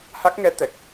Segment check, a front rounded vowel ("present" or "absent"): absent